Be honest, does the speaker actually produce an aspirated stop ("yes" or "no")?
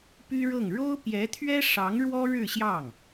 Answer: yes